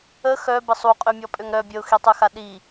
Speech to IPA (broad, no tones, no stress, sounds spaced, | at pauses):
ə x œ b ə sˤ u qʼ ø mʲ ɔ pʼ ø ŋ ɾ œ bʲ ə ʊ̯ x i tˤ ø x a ɗ i